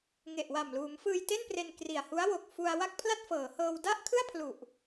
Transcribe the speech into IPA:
ŋ e˨˩ ʔ w a˨˩ m l uː˩˦ m f ɯː˧ j t e˥˩ n p r e˧ n k r i˨˩ a̯ h u˦˥ a̯ w o˨˩ k̚ f u˧ a̯ w a˥˩ k̚ pʰ l a˥˩ t̚ f ɤː˩˦ h ɤː˧ w d a˥˩ ʔ kʰ ɯ˥˩ a̯ pʰ l u˨˩ ʔ

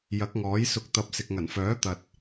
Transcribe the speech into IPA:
j ɐ˨˥ k̚ ŋ ɔː˨˥ j s ʊ˧ k̚ t̪ ɐ˧ p̚ s ɪ˨ k̚ ŋ ɐ˨˩ n f œː˨˥ t̪ ɐ˨ t̚

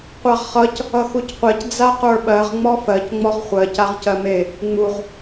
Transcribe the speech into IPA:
qʷ a ʁ χ ʌ c | ʌ x u c qʷ ɜ c d͡z a q ə˞ ɓ ɜ ʁ ŋ͡m ɔ f ɜ c ŋ͡m ɔ ʁ χʷ ɜ c a ʁ c ɜ m e | ŋ͡m u ʁ

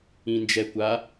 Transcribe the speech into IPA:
ĩ n d͡ʒ ɛ kʷ a

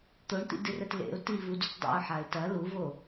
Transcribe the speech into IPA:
t̪ o ɳ t̪ ḭ d ɨ r ɛ t l ḛ ʊ̯ t i v u d u t dˤ ḭ ʊ̯ ħ a ɪ̯ t ɐ l u v o

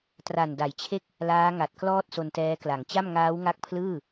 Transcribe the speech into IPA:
t r a˨˩ n d a˩˦ j t͡ɕʰ e˥˩ k̚ | l aː˦˥ ŋ a˨˩ t̚ k l ɔː˥˩ t̚ s o˧ n t ɛː˦˥ k l a˨˩ ŋ t͡ɕ a˥˩ m ŋ aː˦˥ w ŋ a˦˥ k̚ pʰ l ɯː˥˩

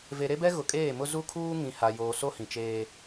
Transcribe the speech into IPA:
v e˨ ɾ e˦ b ɛ˦ ɣ ʊ˨ kʼ eː˦˨ m ʊ˦ z u˦ kʰ uː˦ ŋ ĩ˨ h a˨ j oː˨ s o˦ h ĩ˨ t͡ʃ eː˦

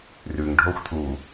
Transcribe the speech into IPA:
r ʉ ŋ ɖʱ o xʷ tʰ u

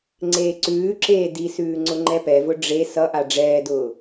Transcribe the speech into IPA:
ŋ͡ǀ eː ǀ ʉː ǁ eː d i s ʉː ŋ͡ǀ ʊ ŋ͡ǃ ɛ p ɛ v ʊ ɖ͡ʐ e s ʌ ʔ a ɖ͡ʐ ɛː d ʊː

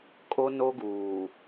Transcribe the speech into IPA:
kʼ o˦ n o˦ ɡ uː˨

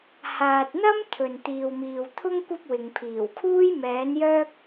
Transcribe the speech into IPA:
h aː˨ t̚ n̪ ɐ˥ m t̪ʰ ɵ˨ n t̪ iː˨ w m iː˨ w t̪ʰ ʊ˥ ŋ kʷ ɐ˥ p̚ w ɪ˨ ŋ pʰ iː˨˩ w kʰ uː˥ j m ɛː˨˥ n j œː˥ k̚

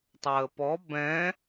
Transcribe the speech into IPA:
tˤ əː p ɔ b ɛ̃

